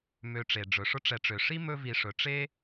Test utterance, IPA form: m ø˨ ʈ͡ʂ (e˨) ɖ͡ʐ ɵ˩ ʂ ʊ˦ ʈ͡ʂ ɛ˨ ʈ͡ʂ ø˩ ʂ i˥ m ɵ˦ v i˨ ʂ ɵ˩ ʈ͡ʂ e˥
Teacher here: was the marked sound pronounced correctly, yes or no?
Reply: no